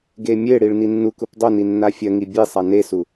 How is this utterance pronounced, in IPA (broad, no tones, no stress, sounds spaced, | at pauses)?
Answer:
ɡ e mʲ e ɽ i ɭ n i nː u k u p dˤ ɵ n i nː a fʲ ɐ ŋ i bʲ e sˤ a n e s u